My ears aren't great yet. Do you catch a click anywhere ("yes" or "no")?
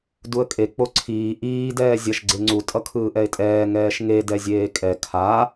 yes